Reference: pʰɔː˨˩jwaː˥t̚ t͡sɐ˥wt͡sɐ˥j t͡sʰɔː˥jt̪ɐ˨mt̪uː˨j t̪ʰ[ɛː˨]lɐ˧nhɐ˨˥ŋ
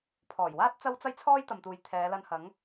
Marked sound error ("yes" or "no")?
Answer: yes